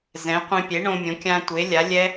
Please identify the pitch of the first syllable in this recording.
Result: rising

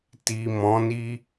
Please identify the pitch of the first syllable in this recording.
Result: low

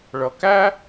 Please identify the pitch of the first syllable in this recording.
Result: low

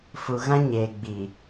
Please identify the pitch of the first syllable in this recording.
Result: low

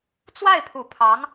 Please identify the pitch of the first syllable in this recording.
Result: falling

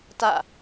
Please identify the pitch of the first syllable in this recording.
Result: falling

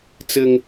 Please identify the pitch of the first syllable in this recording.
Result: high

